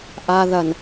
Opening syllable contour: high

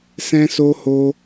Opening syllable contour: high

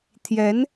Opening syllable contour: rising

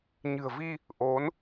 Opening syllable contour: low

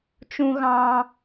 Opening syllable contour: high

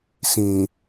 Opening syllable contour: low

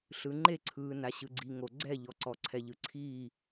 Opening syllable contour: low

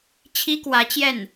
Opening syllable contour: high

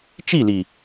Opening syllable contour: falling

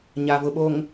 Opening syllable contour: low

